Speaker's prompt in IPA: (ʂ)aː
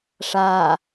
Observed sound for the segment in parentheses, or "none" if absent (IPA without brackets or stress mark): ʂ